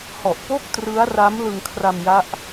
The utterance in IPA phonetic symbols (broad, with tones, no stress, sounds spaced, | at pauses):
h ɔ˨˩ ʔ p o˥˩ k̚ t r ɯ˦˥ a̯ r a˦˥ m l ɯ˧ ŋ kʰ r a˧ m j a˦˥ ʔ